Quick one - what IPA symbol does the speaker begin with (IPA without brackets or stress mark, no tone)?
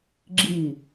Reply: ɡ͡ǁ